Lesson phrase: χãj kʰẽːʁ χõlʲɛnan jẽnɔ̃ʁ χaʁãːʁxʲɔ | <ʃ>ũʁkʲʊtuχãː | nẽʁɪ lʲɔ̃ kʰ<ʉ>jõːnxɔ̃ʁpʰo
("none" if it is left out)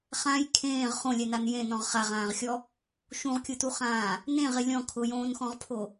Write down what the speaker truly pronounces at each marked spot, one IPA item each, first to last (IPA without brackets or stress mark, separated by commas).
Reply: ʃ, ʊ